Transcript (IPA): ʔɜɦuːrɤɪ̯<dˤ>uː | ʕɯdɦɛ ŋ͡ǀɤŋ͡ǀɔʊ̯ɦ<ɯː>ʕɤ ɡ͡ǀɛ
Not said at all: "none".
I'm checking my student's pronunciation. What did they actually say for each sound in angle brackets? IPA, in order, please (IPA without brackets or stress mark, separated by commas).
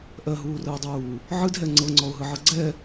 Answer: dˤ, ɯ